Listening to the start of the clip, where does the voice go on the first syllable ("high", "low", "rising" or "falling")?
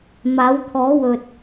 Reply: rising